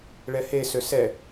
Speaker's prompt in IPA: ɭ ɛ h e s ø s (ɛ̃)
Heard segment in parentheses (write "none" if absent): ɛ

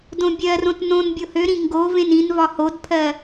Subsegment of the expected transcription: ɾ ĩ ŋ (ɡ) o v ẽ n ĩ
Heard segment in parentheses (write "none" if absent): ɡ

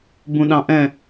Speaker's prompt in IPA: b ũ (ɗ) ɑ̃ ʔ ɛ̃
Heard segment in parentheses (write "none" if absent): ɗ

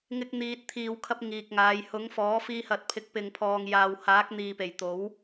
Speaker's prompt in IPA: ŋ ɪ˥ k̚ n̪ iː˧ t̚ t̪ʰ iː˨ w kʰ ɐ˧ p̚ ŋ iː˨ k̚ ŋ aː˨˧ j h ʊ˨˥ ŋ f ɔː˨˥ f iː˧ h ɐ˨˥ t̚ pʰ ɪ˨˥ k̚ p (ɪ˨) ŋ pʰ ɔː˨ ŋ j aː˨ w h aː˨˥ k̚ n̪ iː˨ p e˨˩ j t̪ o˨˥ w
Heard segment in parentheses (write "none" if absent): ɪ˨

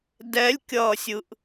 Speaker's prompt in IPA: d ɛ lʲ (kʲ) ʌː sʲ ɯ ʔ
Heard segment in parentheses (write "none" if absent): kʲ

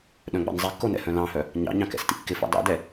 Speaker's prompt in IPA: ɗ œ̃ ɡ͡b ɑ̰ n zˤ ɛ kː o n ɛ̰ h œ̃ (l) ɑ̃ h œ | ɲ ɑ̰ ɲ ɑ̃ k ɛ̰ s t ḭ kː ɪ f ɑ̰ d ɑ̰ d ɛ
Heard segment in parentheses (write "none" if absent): l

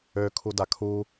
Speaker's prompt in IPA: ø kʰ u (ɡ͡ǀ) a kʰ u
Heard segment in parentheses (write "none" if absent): d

